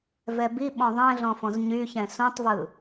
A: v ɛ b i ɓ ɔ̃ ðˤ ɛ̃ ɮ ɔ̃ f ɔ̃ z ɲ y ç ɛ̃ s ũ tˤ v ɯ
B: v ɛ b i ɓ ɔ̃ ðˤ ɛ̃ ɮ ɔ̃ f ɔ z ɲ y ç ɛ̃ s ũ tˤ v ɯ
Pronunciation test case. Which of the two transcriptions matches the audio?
A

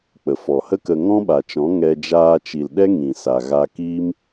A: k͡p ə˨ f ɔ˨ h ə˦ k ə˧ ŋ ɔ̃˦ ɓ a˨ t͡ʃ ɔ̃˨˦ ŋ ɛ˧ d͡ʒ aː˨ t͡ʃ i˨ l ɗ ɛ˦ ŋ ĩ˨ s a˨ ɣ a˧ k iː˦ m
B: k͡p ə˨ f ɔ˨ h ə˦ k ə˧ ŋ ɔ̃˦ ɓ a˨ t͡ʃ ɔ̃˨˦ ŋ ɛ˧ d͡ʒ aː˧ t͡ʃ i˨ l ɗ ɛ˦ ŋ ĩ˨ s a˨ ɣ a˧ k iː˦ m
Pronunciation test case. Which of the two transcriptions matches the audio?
B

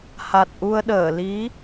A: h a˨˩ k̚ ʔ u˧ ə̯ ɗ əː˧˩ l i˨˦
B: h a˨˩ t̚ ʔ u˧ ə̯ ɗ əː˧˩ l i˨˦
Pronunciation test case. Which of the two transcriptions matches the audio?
B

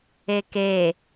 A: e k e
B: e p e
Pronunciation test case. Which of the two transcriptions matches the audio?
A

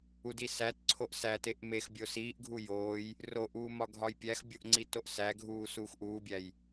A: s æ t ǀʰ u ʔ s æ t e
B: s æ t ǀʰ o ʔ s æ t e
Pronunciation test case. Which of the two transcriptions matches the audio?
B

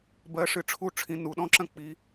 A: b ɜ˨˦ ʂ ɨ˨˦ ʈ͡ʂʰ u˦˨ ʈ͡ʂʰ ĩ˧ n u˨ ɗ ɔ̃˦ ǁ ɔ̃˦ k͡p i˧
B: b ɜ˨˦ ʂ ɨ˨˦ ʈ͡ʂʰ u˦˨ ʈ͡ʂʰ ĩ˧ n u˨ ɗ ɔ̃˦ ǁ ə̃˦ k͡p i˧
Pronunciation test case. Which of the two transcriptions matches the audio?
B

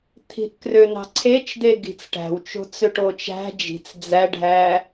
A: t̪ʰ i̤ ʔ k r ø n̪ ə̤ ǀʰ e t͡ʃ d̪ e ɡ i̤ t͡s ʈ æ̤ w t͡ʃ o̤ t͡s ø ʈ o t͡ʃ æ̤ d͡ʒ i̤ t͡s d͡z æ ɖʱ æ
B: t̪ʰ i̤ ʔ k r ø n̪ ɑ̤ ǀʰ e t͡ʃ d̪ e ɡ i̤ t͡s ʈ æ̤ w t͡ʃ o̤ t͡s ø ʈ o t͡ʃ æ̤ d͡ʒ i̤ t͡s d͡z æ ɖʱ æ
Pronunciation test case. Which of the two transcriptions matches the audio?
B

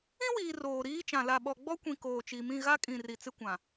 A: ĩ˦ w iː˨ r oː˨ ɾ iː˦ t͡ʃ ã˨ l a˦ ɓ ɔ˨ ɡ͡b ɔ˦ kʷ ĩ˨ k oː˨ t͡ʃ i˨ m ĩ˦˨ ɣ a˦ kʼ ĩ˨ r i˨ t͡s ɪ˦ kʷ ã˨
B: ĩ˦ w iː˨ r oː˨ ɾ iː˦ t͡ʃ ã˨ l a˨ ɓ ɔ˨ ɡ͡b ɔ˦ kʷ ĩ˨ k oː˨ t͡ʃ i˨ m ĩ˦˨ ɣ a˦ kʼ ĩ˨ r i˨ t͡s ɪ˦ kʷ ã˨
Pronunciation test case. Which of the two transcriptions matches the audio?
B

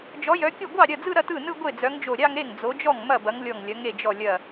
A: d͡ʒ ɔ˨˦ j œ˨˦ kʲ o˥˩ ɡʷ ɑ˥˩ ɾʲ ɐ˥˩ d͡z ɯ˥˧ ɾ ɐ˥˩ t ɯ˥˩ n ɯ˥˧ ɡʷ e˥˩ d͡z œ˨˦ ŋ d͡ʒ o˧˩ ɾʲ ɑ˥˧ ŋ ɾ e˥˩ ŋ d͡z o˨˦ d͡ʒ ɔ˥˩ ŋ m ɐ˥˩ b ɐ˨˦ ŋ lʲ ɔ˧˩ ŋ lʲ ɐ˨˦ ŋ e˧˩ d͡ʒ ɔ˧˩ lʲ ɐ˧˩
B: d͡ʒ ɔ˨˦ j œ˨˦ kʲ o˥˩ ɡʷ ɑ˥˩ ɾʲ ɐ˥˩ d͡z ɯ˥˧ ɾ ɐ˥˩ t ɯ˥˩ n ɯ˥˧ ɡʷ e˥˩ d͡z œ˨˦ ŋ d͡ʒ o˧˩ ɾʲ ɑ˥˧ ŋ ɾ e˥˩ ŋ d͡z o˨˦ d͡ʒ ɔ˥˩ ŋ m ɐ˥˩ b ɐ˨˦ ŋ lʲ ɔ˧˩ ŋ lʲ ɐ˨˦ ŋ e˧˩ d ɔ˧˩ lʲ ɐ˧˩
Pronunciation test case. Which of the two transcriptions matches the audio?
A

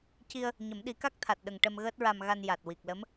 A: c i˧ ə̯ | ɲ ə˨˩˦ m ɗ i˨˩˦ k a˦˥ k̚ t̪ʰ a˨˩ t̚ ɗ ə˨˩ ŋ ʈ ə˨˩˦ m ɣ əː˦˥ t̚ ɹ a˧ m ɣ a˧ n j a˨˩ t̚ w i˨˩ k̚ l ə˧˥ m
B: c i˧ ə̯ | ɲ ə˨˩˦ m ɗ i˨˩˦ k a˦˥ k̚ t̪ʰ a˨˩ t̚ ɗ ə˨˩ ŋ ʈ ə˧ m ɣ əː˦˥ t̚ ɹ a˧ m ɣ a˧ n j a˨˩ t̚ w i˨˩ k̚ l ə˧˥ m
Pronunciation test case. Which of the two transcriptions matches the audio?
B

